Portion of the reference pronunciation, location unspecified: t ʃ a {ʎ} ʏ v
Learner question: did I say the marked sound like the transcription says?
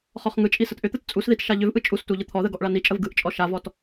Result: yes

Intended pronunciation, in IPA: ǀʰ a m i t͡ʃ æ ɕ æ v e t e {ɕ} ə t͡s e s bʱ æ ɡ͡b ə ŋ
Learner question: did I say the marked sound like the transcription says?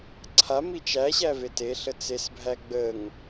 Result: no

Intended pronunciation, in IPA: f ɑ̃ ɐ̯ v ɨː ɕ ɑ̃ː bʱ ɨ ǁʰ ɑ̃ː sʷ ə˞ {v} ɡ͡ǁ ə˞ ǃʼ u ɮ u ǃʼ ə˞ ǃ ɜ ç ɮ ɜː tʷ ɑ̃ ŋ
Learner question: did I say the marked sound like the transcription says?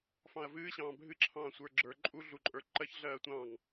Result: no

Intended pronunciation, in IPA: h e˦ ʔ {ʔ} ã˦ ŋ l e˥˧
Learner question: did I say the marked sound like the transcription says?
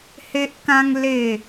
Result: no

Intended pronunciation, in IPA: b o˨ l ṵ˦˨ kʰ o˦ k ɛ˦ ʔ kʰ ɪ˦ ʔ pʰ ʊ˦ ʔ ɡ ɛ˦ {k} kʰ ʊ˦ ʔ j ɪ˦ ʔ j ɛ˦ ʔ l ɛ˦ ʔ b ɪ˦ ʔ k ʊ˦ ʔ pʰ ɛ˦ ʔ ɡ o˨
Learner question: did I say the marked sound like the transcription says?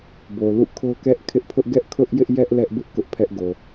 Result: no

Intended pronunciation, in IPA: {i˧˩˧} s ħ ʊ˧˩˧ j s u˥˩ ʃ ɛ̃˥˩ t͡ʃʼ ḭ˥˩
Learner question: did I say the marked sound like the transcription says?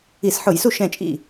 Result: yes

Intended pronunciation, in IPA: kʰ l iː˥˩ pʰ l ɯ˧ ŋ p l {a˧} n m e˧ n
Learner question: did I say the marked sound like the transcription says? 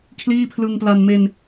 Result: yes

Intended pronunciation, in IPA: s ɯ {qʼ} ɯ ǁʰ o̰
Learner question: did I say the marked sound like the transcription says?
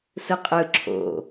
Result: yes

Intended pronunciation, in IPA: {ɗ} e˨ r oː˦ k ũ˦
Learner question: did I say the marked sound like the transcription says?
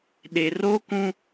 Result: yes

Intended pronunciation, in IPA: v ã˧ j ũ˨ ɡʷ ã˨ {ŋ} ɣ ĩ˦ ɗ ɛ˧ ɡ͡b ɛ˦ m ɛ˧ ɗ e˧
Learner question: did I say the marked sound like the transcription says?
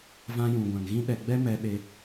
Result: yes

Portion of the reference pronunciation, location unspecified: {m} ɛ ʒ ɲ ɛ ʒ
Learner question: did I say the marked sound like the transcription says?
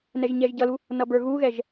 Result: no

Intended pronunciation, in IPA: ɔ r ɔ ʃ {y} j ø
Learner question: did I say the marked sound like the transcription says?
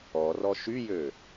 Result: yes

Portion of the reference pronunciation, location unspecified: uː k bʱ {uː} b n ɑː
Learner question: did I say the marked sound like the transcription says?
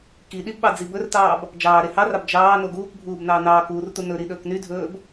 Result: yes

